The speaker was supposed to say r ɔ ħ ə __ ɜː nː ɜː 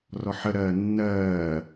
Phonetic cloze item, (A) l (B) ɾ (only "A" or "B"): B